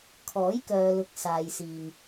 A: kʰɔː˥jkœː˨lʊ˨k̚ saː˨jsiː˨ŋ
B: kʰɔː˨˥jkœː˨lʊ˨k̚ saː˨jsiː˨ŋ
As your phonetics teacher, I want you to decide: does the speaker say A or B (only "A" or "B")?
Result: B